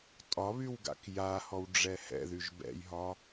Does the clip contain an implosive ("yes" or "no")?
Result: no